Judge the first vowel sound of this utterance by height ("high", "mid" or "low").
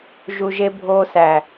high